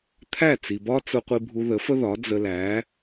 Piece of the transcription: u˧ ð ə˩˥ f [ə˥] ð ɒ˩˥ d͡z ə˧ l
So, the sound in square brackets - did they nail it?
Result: yes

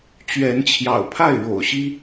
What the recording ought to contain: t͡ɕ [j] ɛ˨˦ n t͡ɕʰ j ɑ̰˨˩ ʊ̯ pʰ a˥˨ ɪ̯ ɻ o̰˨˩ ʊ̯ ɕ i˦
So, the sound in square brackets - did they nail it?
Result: no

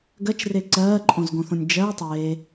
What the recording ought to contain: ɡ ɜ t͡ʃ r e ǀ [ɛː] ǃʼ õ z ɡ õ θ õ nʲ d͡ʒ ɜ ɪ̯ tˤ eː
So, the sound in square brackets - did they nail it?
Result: no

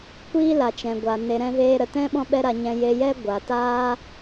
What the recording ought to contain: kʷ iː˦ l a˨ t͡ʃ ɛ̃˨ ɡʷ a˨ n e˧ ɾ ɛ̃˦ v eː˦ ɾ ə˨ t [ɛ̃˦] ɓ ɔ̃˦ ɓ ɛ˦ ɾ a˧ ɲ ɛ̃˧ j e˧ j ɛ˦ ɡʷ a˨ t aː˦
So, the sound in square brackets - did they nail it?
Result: yes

